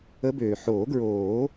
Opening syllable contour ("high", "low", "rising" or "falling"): rising